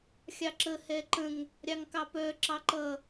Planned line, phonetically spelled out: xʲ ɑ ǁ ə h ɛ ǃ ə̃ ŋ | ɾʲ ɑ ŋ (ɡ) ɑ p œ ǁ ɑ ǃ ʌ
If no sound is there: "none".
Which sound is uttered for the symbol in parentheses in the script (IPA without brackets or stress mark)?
k